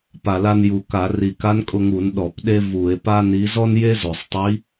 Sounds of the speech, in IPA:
p a˨˩ l a˧ n j u˨˩ k a˧˩˧ r i˨˩ k a˧˥ n kʼ ʊ˧ ŋ u˧˩˧ n ɗ ɔ˧˩˧ p ɗ e˥ v u˧˩˧ e̯ p a˥ n i˧˥ z ɔ˥ n j e˥ z o˨˩ sˤ tˤ i˧˥

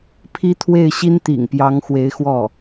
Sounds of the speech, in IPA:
pʰ i˥ t̪ʰ w e˥˩ ɪ̯ ɕ i˥ n t̪ ḭ˨˩ ŋ p j ɑ˧˥ ŋ x w e˧˥ ɪ̯ x w ɔ˥˩

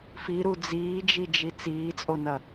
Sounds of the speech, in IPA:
f i ɾ u d͡z iː d͡ʒ i d͡ʒ i t͡s iː t͡sʼ o n ɐ

